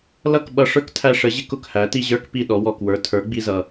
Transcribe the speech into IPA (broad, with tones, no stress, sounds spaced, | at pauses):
l ʌ˥˩ k ɓ ʌ˧ ʂ ə˞˥ k tʰ æ˧ ʂ ə˩˥ ʑ ɪ˥ k ʊ˥˩ k h æ˩˥ t i˧ ʑ ə˞˥ k p i˥˩ ɗ ɔ˩˥ w ɔ˩ k w ə˞˩˥ tʰ ə˞˩˥ ɡ͡b i˧ z ʌ˩